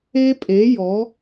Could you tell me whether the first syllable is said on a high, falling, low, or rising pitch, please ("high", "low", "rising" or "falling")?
high